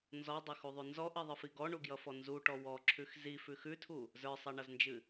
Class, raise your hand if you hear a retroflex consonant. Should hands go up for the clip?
yes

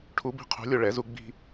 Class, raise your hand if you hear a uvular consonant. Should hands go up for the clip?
yes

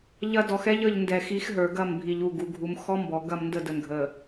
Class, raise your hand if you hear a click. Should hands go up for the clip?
no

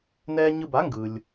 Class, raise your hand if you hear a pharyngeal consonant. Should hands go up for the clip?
no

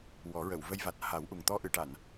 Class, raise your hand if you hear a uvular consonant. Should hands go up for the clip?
no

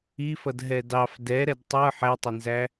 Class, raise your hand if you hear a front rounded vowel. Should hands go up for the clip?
no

